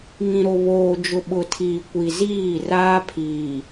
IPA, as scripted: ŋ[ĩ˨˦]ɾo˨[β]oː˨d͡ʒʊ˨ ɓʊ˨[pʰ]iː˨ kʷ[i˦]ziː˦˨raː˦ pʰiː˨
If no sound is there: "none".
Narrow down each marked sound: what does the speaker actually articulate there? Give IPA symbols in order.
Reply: ĩ˨, β, tʰ, i˨

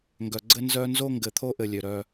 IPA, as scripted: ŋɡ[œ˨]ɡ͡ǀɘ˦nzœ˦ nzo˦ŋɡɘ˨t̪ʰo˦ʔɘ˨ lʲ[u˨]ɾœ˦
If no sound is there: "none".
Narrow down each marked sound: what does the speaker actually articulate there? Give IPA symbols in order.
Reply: œ˨, ø˨

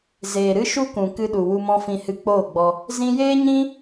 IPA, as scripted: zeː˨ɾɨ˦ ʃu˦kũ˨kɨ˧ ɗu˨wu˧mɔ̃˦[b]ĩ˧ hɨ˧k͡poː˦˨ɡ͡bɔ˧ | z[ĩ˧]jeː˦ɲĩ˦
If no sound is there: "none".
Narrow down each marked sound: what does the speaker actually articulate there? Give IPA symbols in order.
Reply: f, ĩ˧

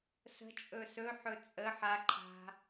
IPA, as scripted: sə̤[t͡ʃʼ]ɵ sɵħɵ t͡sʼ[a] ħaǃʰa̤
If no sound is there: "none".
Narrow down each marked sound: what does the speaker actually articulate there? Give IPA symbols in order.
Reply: t͡ʃʼ, ə

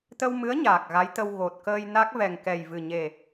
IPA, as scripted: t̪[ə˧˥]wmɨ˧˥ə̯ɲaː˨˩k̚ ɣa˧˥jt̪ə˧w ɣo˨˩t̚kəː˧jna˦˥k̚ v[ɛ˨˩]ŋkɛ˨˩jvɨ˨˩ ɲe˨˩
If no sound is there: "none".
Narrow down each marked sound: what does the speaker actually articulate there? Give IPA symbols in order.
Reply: ə˧, ɛ˨˩

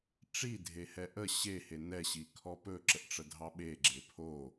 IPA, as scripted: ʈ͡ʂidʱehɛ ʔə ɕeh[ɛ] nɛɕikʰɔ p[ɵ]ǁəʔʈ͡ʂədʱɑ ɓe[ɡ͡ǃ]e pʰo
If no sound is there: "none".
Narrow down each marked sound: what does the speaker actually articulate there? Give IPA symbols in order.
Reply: e, ɵ, ɡ͡ǁ

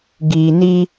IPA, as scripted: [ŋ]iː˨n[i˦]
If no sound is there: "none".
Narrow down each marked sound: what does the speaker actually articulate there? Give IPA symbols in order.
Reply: ɡ, i˦

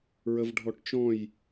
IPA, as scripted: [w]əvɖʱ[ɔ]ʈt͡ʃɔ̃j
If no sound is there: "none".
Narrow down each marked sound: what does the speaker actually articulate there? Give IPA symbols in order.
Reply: ɹ, ɔ

